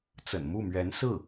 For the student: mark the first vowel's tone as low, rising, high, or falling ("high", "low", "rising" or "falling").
low